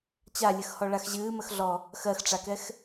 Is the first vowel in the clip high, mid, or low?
low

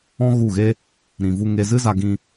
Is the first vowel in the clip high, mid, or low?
mid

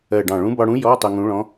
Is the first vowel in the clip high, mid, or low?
mid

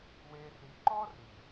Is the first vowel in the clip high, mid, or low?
mid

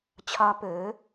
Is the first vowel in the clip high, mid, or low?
low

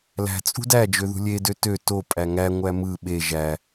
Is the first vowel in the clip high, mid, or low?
low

